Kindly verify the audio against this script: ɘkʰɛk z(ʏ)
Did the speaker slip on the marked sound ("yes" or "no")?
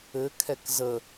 yes